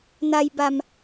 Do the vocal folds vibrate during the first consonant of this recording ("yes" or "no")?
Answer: yes